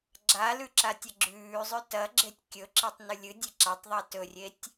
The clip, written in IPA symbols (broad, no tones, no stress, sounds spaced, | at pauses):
ɡ͡ǁ a l ʉ ǁ a tʲ ɐ ɡ͡ǁ ʉː zˤ ʉ t ɐ ɡ͡ǁ e tʲ kʲ ɵ ǁ i tˤ n ʉ lʲ ɨ dʲ e ǁ a tˤ ðˤ e t ɵ rʲ e tʲ